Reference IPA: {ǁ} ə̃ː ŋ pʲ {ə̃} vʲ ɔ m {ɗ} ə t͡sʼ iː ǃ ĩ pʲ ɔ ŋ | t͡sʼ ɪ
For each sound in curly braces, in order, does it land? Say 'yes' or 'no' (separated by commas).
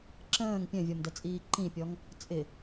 yes, no, no